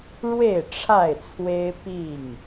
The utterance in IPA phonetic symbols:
ɻ w e˥˨ ɪ̯ ʈ͡ʂʰ a˥˨ ɪ̯ t͡sʰ w e˦ ɪ̯ p i˥˨ ŋ

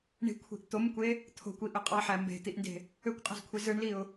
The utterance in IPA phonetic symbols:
ɳ i̤ kʷʰ i̤ ʔ t̪ o m kʷ e | t̪ʰ o̤ kʷ i ʔ ø qʼ ɑ ħ æ m b e̤ t̪ i ʔ n d e̤ | ø kʷ qʼ e̤ z kʷʰ e z ɯ ɳ l i ʊ̯

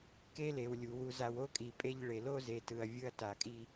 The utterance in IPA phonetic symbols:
k e˦ l e˨ w lʲ u˨ w u˨ z a˨ w o˦ kʼ i˨ pʼ e˦ ʎ ɭ e˨ l o˦ z e˨ t ɯ˨ ɐ̯ vʲ ɯ˦ ɐ̯ t a˨ kʼ i˦

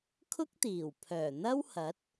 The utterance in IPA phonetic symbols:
kʰ ʊ˥ k̚ t̪ iː˨˩ w pʰ œː˨˩ n̪ ɐ˥ w h ɐ˨˥ t̚

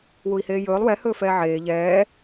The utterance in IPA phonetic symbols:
w u i̯ h eː j ɵː lˠ w ɛ h ɵː f ɛː ʕ eː ʎ ɛː

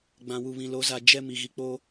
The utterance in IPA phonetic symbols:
ɡ͡b ã˨ w u˨ β ĩ˨ l o˨˦ z a˨ d͡ʒ ɛ˦ m i˨ ɣ i˨ k͡p oː˦

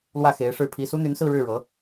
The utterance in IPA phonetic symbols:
l w ä˥˩ x e˧˥ ɪ̯ ʂ ɻ̩˥˩ pʰ i˥ s u˥ n̪ y˧˥ n s ɹ̩˥˧ ɻ ɻ̩˥˩ ɻ ɤ˧˥

